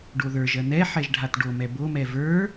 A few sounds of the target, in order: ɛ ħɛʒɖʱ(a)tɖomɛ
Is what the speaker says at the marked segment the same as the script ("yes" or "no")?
yes